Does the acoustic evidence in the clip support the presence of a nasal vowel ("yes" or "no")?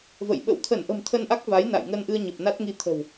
no